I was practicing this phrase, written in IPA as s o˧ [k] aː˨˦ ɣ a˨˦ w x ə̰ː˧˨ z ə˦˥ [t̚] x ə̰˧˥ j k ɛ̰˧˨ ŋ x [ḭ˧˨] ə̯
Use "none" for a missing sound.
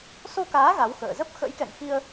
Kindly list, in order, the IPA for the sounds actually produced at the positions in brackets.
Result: k, p̚, i˧

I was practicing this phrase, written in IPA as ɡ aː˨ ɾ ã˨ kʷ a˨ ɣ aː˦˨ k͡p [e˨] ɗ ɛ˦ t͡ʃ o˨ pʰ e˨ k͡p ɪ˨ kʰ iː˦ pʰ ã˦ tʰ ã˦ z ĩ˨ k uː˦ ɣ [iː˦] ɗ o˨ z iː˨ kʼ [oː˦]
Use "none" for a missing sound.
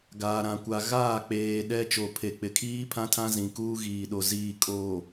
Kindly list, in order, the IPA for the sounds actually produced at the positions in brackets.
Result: eː˨, iː˨, oː˨

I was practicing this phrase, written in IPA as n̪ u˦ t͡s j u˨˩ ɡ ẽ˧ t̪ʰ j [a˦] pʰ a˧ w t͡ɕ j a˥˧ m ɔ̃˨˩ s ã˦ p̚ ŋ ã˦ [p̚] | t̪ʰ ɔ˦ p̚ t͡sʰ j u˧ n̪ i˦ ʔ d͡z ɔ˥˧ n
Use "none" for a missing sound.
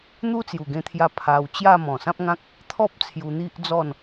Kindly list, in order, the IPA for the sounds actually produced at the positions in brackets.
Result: a˧, k̚

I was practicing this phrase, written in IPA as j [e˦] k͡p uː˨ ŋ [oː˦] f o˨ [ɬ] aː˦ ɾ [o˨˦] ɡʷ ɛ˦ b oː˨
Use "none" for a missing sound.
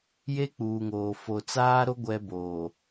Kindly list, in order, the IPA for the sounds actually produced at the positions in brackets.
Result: e˦, oː˨, t͡s, o˦

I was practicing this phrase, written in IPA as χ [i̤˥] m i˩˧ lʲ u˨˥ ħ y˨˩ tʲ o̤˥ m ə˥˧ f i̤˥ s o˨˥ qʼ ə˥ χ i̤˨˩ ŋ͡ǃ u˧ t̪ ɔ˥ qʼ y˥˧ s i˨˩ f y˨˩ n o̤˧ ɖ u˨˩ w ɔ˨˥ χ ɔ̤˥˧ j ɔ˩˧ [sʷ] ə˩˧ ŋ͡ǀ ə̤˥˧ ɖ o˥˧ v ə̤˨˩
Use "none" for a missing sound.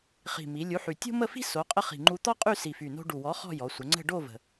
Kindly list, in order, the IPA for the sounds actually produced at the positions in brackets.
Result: i̤˨˩, sʷ

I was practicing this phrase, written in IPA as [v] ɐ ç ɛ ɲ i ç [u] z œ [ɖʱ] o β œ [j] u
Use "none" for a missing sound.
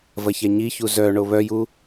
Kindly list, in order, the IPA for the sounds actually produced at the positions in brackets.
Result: v, u, ɳ, j

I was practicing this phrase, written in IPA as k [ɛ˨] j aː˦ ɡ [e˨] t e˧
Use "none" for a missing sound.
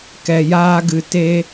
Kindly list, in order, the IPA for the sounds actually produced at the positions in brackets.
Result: ɛ˨, ɨ˨

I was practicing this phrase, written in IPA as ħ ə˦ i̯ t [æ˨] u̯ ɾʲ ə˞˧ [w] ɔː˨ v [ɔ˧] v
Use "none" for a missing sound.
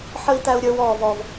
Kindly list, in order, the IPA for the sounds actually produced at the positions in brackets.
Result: æ˧, w, ɔ˨

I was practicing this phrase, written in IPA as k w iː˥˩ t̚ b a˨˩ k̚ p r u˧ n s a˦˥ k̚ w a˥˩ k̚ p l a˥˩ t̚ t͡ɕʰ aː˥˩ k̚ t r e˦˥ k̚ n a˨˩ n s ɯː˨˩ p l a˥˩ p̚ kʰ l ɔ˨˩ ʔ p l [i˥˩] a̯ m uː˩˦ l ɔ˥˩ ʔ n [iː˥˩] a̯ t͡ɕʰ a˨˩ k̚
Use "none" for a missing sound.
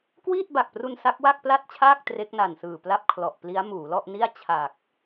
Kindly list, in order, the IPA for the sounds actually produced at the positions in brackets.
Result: i˦˥, i˥˩

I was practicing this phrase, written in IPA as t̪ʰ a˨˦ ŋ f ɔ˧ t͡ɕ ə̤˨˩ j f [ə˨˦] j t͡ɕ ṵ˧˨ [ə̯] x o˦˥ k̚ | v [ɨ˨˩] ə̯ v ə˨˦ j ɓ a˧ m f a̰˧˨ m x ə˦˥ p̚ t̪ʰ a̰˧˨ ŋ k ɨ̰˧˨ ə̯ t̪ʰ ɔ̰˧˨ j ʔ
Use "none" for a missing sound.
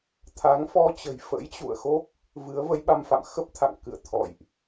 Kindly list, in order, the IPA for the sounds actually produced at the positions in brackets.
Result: ə̰˧˥, ə̯, ɨ˨˦

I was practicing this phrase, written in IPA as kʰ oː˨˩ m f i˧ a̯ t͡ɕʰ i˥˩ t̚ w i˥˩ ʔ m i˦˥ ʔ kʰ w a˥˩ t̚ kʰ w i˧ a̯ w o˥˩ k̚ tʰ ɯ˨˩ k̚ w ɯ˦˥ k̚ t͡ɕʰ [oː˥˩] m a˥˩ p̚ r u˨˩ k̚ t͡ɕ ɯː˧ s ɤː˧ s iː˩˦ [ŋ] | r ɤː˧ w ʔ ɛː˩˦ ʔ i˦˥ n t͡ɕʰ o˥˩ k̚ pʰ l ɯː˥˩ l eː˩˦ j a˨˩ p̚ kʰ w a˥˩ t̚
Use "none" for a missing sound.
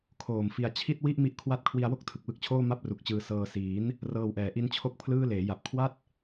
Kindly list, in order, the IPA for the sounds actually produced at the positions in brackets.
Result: oː˥˩, n

